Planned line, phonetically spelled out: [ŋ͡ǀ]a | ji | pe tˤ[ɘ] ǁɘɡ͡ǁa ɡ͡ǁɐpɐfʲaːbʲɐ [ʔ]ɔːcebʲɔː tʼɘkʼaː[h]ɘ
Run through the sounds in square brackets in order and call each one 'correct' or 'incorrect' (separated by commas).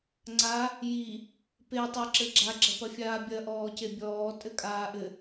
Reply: correct, correct, correct, incorrect